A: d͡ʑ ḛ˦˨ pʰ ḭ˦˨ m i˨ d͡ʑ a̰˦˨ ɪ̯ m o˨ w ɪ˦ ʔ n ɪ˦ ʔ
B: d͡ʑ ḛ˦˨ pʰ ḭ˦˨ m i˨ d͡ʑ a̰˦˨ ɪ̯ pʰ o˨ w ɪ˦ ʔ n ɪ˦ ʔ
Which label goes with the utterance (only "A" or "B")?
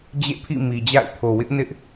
B